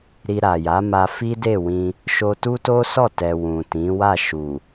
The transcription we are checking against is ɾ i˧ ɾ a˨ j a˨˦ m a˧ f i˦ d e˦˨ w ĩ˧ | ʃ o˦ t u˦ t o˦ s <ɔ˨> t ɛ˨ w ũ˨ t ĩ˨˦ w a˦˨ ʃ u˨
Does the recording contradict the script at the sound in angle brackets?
yes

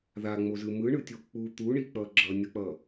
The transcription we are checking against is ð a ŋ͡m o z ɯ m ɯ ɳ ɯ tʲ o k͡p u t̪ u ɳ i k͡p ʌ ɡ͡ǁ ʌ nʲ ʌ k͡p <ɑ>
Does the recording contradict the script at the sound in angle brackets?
yes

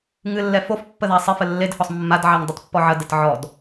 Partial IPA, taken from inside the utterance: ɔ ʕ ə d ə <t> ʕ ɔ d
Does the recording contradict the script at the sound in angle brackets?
no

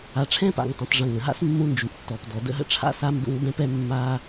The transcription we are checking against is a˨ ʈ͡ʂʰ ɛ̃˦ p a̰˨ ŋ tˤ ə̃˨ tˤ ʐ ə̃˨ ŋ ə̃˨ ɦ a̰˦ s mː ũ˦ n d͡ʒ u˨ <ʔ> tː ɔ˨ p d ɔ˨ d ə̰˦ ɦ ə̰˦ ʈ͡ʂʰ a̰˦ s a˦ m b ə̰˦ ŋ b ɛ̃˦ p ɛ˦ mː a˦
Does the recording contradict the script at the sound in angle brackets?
no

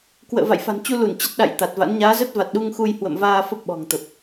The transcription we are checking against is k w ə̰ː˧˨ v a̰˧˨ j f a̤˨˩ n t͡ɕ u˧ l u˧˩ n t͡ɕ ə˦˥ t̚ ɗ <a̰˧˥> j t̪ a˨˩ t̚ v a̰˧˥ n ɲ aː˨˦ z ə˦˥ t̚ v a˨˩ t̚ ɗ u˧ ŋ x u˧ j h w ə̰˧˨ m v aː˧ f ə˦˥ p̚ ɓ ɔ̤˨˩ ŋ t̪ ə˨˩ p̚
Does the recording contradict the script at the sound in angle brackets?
yes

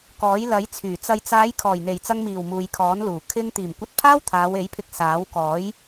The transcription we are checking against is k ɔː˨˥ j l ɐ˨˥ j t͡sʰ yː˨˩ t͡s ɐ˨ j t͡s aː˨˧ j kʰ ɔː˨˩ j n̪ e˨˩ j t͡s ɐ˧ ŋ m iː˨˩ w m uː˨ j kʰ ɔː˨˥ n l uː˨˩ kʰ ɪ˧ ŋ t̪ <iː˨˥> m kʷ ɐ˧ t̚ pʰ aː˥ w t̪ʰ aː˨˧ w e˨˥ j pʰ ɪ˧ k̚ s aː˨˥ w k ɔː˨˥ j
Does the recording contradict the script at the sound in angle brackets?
yes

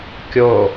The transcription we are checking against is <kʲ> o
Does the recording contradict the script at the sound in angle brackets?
no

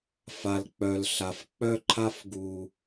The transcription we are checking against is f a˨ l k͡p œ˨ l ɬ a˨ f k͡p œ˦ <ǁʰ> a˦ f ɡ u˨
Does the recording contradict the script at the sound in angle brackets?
yes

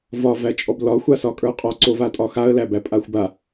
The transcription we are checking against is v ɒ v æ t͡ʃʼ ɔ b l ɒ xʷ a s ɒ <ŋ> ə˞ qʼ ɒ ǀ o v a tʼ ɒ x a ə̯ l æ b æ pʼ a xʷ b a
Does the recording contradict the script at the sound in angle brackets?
yes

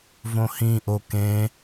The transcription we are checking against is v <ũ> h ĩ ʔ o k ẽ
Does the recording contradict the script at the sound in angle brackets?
yes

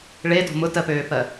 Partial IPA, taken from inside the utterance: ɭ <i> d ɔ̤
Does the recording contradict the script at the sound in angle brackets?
yes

